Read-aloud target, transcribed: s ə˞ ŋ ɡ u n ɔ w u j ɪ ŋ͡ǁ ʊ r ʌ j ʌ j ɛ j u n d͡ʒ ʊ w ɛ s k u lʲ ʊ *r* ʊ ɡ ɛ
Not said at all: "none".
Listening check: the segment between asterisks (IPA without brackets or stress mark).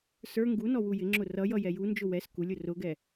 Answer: r